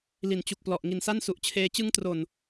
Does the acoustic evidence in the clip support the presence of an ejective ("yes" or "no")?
no